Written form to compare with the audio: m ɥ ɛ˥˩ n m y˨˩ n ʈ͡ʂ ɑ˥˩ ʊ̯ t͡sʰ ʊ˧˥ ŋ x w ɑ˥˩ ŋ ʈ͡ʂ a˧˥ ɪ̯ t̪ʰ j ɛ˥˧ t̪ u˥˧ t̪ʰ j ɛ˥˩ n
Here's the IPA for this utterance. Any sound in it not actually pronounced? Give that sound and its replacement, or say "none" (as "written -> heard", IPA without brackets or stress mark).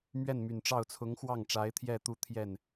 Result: none